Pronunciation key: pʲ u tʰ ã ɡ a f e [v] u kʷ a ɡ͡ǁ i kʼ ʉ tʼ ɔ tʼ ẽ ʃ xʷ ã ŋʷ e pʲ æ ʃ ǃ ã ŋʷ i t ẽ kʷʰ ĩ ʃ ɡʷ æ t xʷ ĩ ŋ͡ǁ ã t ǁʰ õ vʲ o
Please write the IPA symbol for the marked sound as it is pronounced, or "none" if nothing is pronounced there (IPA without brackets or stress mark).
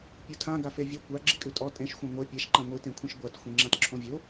vʲ